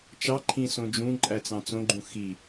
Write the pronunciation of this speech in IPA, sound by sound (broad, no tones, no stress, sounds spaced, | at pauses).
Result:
t͡ʃ ɑ ǃʰ ĩ s õ d͡ʒ ũ ǃʼ æ t͡s ɑ̃ t͡s õ ɡ͡ǃ ũ x i